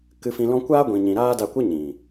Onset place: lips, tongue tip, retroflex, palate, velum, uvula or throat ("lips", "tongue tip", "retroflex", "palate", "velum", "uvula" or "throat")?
velum